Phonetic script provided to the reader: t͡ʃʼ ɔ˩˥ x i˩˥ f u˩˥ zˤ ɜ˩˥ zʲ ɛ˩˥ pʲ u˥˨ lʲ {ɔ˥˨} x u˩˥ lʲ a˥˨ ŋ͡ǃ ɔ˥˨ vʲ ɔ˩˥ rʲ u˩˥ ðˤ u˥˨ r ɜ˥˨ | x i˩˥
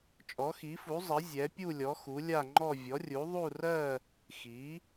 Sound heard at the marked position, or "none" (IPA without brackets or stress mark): ɔ˩˥